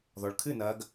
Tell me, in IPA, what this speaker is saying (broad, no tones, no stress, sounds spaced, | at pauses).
ð ɔ ɭ kʰ ɨ n ɐː ɡ